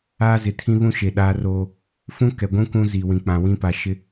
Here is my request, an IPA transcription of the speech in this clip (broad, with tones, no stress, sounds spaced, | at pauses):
aː˦ z ɪ˨ tʰ ĩ˦ β ũ˦ ʃ e˨ ɗ aː˦ r oː˦ | f ũ˦ k ɛ˨ ɡʷ ũ˦ k ũ˦ z i˨ w ĩ˨ k͡p ã˨ w ĩ˦ p a˨ ʃ ɪ˦